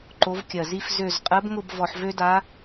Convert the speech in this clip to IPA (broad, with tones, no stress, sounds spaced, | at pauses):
ǃ o˧˥ v kʲ ɜ˨˩ z i˥˧ f z ø˥˧ z qʼ ɜ˧˥ b ŋ ʊ˥˧ b v ɔ˧ ħ v ø˥ d a˧˥